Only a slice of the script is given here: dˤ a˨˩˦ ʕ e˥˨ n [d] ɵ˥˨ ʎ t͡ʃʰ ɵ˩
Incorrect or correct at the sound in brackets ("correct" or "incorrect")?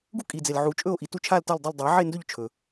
correct